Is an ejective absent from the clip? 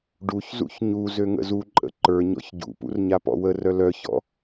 no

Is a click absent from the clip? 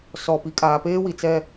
yes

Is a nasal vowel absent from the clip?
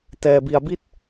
yes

